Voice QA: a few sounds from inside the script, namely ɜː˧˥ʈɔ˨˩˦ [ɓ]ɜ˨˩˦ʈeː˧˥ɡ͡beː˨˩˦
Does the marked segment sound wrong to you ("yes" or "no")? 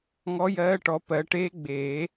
yes